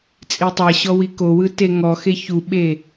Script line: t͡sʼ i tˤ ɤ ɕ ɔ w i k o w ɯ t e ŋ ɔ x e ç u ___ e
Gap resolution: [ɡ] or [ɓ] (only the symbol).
ɓ